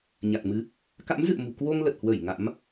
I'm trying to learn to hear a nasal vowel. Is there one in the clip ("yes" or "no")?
no